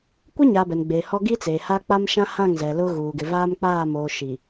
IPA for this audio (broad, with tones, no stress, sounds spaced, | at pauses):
kʷ ɪ˦ ɲ a˨ b ɛ˨ n ɡ͡b eː˨ h ɔ˦ ɡ i˦ t͡s eː˨ h a˦ k͡p a˦ m ʃ ã˦ h ã˦˨ ŋ z ɛ˨ l ʊ˦ ɣ uː˨ ɡ ɪ˨ v aː˦ m k͡p aː˦˨ m oː˨ ʃ i˨